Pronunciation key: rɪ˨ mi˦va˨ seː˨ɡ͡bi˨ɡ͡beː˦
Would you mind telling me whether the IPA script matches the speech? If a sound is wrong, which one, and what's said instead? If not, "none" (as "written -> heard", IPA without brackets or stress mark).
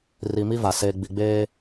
ɪ˨ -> i˨